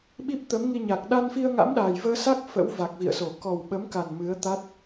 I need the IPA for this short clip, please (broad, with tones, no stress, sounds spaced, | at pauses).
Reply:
ɓ i˦˥ p̚ t̪ ə˨˦ m ŋ i˧ ɲ a˨˩ k̚ ɗ a˧ n f i˧ ə̯ ŋ a̰˧˥ m ɗ aː˨˩ j v əː˧ s a˦˥ k̚ f ə̰˧˥ w v a˨˩ k̚ v ḭ˧˨ ə̯ s o˧˩ k ɔ˨˩ w ɓ ə˨˦ m k a˨˩ n m ɨ˨˦ ə̯ t̪ a˦˥ t̚